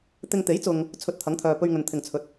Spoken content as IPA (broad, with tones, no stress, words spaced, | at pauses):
t̪ɪ˧ŋ t̪e˨˥jt͡sʊ˨ŋ | t͡sʰɵ˧t̚t̪ʰɐ˨˥ŋt̪ʰœː˨pɵ˧ɥ ŋɵ˨nt̪ʰɪ˨ŋt͡sʰɵ˨t̚